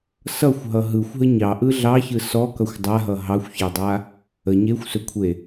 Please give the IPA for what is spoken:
s ʌ xʷ ɦ ʌ ɦ ɯ xʷ ɦ ə ɲ ɑ ʔ ɯ ɮ ɑ ç ɯ s ɔ k ʌ xʷ dˤ a ɦ ʌ ɦ ɑ xʷ ç a dˤ a | ə ɲ e xʷ s ɵ kʷʰ e

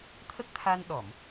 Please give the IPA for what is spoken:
t̪ʰ ə˦˥ k̚ t̪ʰ a˧ n ɗ ɔ˨˩˨ m

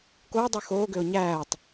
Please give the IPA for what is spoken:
k oː dˤ ʉ x oː ɡ ø ʊ̯ ɲ æː tˤ

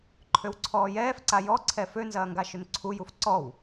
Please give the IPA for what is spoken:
ǃʰ ø w ǀʰ ɔː j ɛː f ǀ a j ɔ ǀʰ ɛ f ø n z ɐː ŋ ɡ a ʃ ʏ n ǀʰ u j u f ǀ ɔ w

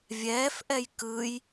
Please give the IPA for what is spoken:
vʲ ɛː f ʔ ɛ j k ɯ j

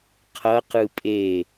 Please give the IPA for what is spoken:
qʰ ʌ q ɯ pʼ e

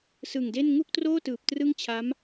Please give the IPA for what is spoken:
s ɯ˨˩ ŋ d e˥˩ n ŋ u˥˩ k̚ t r oː˥˩ t ɯː˨˩ p̚ t r ɯ˥˩ ŋ t͡ɕʰ a˦˥ m

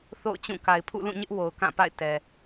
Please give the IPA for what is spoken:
θ o̰˦˨ ʊ̯ t͡ɕ ũ˦˨ k a˨ ɪ̯ pʰ ṵ˦˨ l ũ˦˨ ɲ ɪ˦ ʔ w o˨ ʊ̯ k ã˦˨ p a̰˦˨ ɪ̯ t ɛ˨

